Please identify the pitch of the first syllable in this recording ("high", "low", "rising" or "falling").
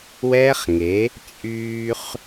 high